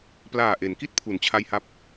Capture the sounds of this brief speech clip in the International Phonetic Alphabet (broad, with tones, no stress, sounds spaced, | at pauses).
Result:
p l aː˨˩ ʔ e˩˦ n k i˥˩ t̚ pʰ u˩˦ n t͡ɕʰ a˧ j h a˦˥ p̚